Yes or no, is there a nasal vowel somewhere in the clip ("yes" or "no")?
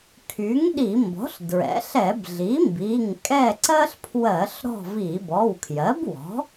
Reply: no